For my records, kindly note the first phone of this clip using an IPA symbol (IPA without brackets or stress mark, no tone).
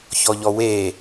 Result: ç